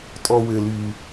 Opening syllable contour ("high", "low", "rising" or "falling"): high